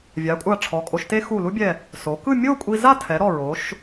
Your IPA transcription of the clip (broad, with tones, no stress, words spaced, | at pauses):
vʲa˩˧ kʷʼa˧˩ʈ͡ʂʰɔ˩˧kʼo˩˧ʃte˥ xu˧˩lu˥bʲɛ˧˩ | so˩˧kɯ˥˧ mʲo˥˧kʷʼi˧za˥˧tʰɛ˩˧ ɾɔ˧˩ɹo˩˧ʃ